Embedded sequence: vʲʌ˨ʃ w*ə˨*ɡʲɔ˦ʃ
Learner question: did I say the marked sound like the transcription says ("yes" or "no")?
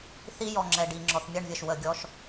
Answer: yes